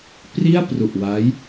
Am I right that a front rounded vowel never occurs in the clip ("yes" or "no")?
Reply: yes